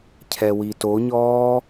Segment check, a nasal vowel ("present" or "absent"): absent